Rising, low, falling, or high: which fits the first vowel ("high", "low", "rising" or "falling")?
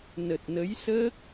low